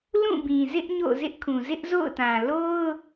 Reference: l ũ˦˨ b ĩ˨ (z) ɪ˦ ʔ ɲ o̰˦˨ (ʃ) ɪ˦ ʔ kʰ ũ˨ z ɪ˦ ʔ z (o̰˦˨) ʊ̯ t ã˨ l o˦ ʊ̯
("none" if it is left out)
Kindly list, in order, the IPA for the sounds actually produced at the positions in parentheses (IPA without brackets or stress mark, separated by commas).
z, z, o̰˦˨